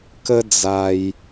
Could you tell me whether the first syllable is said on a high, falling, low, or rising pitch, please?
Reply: high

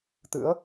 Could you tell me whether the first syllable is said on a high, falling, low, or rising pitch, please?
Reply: rising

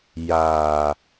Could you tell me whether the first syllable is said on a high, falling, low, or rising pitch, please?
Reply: low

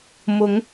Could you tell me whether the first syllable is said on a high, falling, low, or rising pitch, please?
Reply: rising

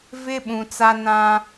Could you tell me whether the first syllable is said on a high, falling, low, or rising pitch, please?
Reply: high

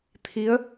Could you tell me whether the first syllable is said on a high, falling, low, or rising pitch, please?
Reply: rising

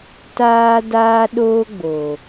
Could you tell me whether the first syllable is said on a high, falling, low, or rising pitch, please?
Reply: high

